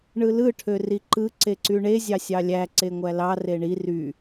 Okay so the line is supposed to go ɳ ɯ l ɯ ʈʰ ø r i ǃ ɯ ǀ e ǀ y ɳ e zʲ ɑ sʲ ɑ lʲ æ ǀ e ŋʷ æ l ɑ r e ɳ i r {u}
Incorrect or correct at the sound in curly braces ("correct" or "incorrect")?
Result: incorrect